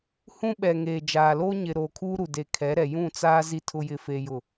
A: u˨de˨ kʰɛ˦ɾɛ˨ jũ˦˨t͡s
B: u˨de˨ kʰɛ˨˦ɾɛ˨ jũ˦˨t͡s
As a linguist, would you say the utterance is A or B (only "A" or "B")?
B